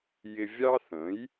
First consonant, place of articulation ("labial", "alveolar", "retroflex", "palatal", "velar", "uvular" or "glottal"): palatal